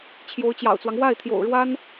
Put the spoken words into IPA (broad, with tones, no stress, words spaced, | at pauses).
t͡ɕʰjo˧˥ʊ̯t͡ɕjɑ̰˨˩ʊ̯t͡swɑ˦ŋ wa˥˩ɪ̯t̪ʰjo̰˨˩ʊ̯ɻwa˥n